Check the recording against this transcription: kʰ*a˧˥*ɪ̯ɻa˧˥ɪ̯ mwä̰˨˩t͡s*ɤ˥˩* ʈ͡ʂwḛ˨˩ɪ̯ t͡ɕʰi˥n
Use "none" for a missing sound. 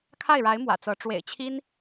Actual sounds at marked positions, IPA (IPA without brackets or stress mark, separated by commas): a˥˩, ɤ˧˥